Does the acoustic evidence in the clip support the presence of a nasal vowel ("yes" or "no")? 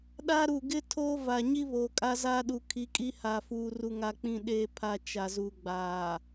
yes